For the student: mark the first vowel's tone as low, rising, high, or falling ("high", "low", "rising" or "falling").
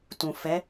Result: low